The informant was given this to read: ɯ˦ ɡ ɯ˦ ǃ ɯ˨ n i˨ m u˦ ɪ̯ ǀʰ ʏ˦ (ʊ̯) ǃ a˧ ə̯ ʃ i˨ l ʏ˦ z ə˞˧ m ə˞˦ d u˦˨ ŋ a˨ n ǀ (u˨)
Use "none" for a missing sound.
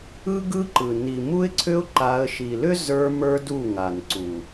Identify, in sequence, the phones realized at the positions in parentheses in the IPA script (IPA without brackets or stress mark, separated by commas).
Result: ʊ̯, u˨